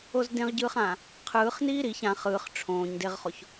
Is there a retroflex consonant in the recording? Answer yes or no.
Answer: yes